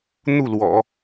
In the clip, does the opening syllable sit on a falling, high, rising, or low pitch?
falling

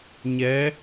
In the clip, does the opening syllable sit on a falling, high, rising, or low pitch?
rising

